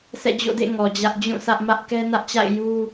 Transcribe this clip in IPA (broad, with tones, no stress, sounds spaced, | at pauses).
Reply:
s ɛ̰˦˨ d͡ʑ o̰˦˨ d ḛ˦˨ ŋ ɔ˨ d͡ʑ ä˦ ʔ d͡ʑ ũ˦˨ sʰ ä˦ ʔ m ä˦ ʔ k ɛ˦ n ä˦ ʔ t͡ɕ a̰˦˨ ɪ̯ j u˦